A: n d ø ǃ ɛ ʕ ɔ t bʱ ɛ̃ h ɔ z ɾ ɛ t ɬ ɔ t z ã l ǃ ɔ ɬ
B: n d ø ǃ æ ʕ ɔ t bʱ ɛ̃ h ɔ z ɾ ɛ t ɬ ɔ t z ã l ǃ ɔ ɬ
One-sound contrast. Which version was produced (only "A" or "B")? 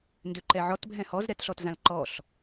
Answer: A